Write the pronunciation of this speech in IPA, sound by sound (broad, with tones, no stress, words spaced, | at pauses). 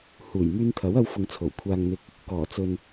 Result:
huː˨˩jmyː˧nt̪ʰɐ˨˥wɐ˧w fʊ˨ŋt͡sʰo˨˩w kʷʰaː˨ŋn̪ɪ˨k̚ | kɔː˨˩t͡sɵ˨n